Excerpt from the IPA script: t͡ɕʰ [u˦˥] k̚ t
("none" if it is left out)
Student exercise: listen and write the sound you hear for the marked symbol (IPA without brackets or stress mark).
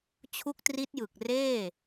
u˦˥